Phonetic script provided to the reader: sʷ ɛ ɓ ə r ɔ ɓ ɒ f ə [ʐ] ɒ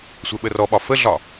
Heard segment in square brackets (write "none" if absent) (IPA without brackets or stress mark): ɮ